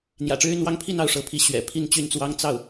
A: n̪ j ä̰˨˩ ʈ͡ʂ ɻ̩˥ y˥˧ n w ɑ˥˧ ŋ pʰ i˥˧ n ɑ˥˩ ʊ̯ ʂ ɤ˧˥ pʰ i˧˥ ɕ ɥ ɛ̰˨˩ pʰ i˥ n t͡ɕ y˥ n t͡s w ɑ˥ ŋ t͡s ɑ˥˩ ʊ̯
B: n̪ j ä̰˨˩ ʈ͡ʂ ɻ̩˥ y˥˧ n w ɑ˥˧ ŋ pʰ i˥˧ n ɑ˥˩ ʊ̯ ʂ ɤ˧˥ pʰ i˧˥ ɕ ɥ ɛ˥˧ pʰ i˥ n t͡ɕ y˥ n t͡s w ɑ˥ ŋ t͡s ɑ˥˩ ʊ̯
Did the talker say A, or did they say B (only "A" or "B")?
A